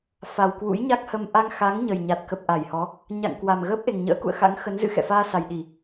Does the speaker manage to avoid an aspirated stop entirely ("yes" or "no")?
yes